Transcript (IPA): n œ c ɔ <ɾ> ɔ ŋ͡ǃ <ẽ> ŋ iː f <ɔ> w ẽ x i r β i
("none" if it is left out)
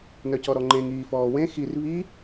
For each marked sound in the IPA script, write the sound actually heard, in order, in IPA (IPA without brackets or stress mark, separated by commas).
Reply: ɾ, ẽ, ɔː